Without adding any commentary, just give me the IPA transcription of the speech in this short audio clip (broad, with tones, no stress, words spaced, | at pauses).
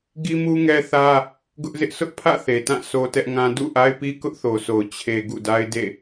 ɡi˦mu˦ŋɛ˦θä˦ | ɡʊ˦ʔzɪ˦ʔ sʊ˦ʔpʰä̰˦˨ θe˨tã˦˨ sʰo˦tɛ˦ʔŋã˦ dṵ˦˨ʔa˦ɪ̯pi˦ kʊ˦ʔθo˨so˨ʊ̯ t͡ɕʰe˨ ɡṵ˦˨da˦ɪ̯ dḛ˦˨